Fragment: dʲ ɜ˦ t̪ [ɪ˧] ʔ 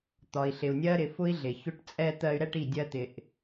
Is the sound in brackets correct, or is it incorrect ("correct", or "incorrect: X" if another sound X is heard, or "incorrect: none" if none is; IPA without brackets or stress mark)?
correct